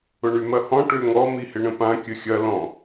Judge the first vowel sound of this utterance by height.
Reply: high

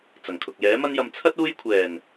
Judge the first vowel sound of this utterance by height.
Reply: low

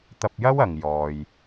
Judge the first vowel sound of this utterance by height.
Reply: low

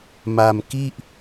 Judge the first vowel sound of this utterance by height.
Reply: low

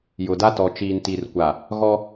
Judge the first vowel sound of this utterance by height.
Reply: high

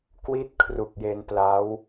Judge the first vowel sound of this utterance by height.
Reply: high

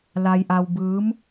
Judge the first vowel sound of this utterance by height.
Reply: low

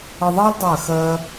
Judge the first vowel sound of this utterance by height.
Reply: mid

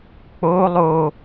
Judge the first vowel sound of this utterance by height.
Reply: mid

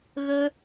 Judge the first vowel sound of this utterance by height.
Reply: mid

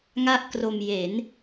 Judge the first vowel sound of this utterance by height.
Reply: low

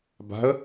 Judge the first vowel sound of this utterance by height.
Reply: low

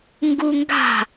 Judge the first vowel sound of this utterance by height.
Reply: high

